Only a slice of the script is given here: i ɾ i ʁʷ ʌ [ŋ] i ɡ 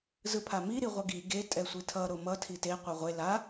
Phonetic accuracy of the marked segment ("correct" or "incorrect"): incorrect